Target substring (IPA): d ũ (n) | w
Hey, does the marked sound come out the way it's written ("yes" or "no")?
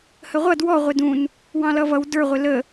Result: yes